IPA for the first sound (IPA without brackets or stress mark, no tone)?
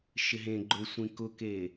ʃ